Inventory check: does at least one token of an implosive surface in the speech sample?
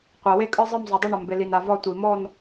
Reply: no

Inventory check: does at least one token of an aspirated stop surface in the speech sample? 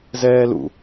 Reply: no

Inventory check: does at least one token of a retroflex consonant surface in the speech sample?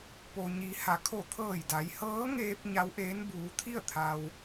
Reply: no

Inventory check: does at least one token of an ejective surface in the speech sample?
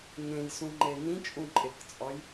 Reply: yes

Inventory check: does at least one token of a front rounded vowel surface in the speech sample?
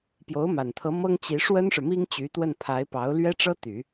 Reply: yes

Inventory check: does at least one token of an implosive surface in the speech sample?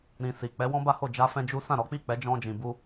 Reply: no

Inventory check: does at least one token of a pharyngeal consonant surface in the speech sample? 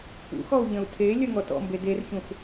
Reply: no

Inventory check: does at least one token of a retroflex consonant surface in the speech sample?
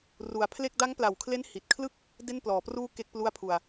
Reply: no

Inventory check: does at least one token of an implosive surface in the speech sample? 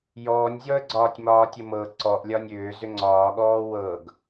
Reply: yes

